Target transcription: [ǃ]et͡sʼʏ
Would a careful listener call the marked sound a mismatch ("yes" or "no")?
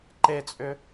no